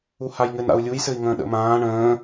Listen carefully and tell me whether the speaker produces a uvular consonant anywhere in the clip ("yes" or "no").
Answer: no